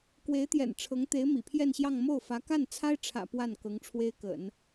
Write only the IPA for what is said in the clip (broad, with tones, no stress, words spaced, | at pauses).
kwe˧˥ɪ̯t̪jɛ̰˨˩nʈ͡ʂʰɤ˧˥ŋ t̪e˧˥ɪ̯mḭ˨˩pʰjɛ˥˧nɕjɑ˥˧ŋ mo˥˩ʊ̯fä˧˥ ka˥˩nt͡sʰa˥ɪ̯ʈ͡ʂʰä̰˨˩ pwa˥˩n kɤ˧˥ŋ ʈ͡ʂʰwe˥ɪ̯kə̰˨˩˦n